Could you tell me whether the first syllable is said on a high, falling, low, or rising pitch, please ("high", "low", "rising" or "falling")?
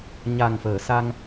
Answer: low